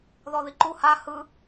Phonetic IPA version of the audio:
ð ɔ ð i ǃ u h a h ɯ

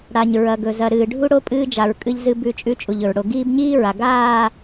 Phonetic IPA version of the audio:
ɽ a˨ ɲ ɹ ɐ˨ ɡ ɵ˨ z ɐ˨ ɾ ɨː˨ ɖʱ u˦ ɽ o˦ pʼ ɨː˦ d͡ʒ a˨ ɹ kʼ ɨ˦ ʎ z ɨ˦ b ʉ˦˨ t͡ʃʼ ʉ˦ t͡ʃʼ u˨ ʎ ɵ˨ ɹ ɽ o˨ ɡ iː˦ b ɲ iː˦ ɹ a˨ ɡ aː˦˨

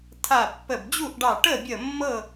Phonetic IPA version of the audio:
tʰ a˧˩ pː ə˧˩ b d͡ʑ u˥˨ ʔ ɖ ɑ˧˩ ʈ ə˥˨ bʲ ə˧˩ mː ɤ˥˨

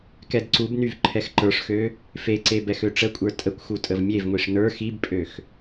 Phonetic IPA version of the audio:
k ɛ d ǀ u b n y v ǃʰ ɛ x ǃ ə˞ ʂ x ø | f e ǀ e b ɛ x ø ʈ͡ʂ ə kʷʼ ə˞ tʼ ə kʷ x u tʼ ə v mʲ e v ŋʷ i ʂ n ə˞ x i b pʼ ø x

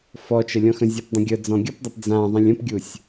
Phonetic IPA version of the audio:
f ɔ t͡ʃ ə lʲ ɔ̃ x ə̃ zʲ ʌ p dˤ ə̃ ɡʲ ə d͡z ɔ̃ ɡʲ ɤ p dˤ a p d͡z ã ðˤ ẽ lʲ ə̃ p ɡʲ u sʲ

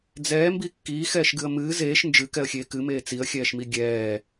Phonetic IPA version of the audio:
d͡z ɛː m b i kː iː x ɛː ʃ ɡ ɨ ə̯ m ɨː z eː ʃ n d͡ʒ ɨ k ɛ ə̯ xʲ eː k ɨ m eː t͡s i ə̯ xʲ ɛː ʃ m i ɡʲ ɛː

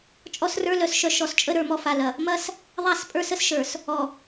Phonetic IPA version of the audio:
t͡ʃʼ ɔ˦ s r ə˞˦ l œ˨ s ʃ œ˦ ʃ ɔ˨ s t͡ʃʼ ə˦ ɾ ə˞˨ m ɔ˦ f a˨ l ɐ˨ | m ɐ˦ s | ðˤ a˦˨ s pʼ ə˞˦ s ə˦ s ʃ ə˞˨ s | ɔ˨

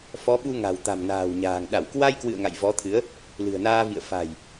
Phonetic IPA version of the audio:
f ɔ˨˦ ɓ u˧ ŋ a̤˨˩ w t̪ a̤˨˩ m n a̤ː˨˩ w ɲ a̤ː˨˩ ŋ ɗ a˧˩ w k w a˧ j k w ɨ̰˧˨ ə̯ ŋ a̰˧˨ j v ɔ˨˦ t̪ʰ ɨ˨˦ ə̯ | l ɨ̤˨˩ ə̯ n aː˧ v ḭ˧˨ ə̯ f a̤˨˩ j

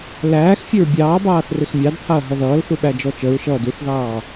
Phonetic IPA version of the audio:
l æː x fʲ ə ɹ bʲ ɑː b ɑː θ r ɪ x mʲ ɑ d t̪ʰ ɑ ɐ̯ ɦ ʌ ð ʌː l θ u ɓ æ d͡ʒ ɔ t͡ʃ ə ɹ ʃ ʌː d u θ ð ɑː

